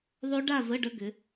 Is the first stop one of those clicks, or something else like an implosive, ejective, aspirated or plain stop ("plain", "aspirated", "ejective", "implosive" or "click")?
plain